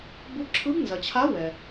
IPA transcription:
bu˧˥ǁʰɯ˧˥bnzɐ˨t͡ɕʰa˧˥ wɛ˨

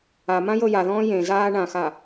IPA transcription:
amã jɤjaðɔ̃ː jẽ zaːɳãxa

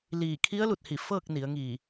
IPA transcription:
liː˧˩ kʰi˧˥ə̯lu˧˩t̚hi˧˩ fɤː˥˨k̚ni˩˧ə̯ŋi˧˩

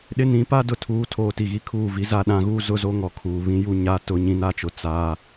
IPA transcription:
ɗɪ˦nĩ˨˦ pa˦dʊ˨tʰuː˨˦ tʰoː˨ti˨ ɣi˦kʰuː˦˨vi˦za˦ ɗã˨˦ɣuː˦ zʊ˦zo˦ŋɔ˨ kʰuː˨βĩ˦ ju˦ ɲa˦ tʊ˨˦ɲĩ˨na˦t͡ʃʊ˨ t͡sa˦

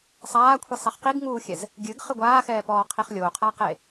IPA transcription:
sˤaːkʷʰisˤɛχ qiɡŋuːxʲɛz | ɡʲɨɡχɨ ɡʷaːxɛːpɔːqʰiχ lʲoqʰaqe

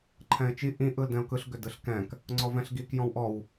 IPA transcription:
ǃʰɛ̃ɪ̯t͡ʃi ʔĩ ʔɯldɛ̃ʊ̯kɯɬ ɡʏdɯɬkɛ̃k | ŋ͡ǀɔvɛ̃ɬɡik jɔ̃wʔɔw

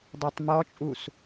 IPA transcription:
dˤɛtˤmɔt͡ʃʼus

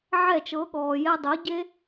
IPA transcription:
ʕɛ˥˩t͡ʃɤ˩˥ɠɔː˩ jɛ˧dˤəː˩˥ɟe˥

